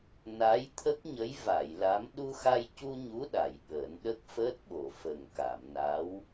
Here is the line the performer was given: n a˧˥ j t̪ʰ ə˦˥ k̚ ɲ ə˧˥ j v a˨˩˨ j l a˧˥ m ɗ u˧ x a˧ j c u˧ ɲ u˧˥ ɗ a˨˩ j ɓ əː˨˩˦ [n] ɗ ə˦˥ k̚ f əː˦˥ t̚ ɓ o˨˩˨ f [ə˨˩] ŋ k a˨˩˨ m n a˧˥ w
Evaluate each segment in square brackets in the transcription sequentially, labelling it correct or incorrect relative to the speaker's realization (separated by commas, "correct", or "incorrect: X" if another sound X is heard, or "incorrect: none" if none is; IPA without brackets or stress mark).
correct, correct